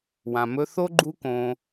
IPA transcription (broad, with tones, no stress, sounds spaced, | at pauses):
w ã˨ m ɵ˧ θ o˦ ɡ͡ǃ u˦ k õ˧